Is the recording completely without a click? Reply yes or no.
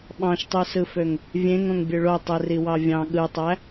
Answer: yes